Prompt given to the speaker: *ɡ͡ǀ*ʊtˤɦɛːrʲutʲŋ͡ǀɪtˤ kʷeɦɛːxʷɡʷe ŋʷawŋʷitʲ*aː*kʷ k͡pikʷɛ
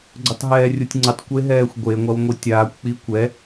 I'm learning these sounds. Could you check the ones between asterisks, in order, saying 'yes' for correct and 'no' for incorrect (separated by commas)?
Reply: yes, yes